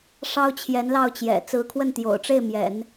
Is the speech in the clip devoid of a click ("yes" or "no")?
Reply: yes